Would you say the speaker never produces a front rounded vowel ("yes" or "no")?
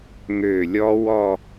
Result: no